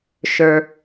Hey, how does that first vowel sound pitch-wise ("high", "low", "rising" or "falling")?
high